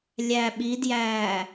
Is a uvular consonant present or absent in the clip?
absent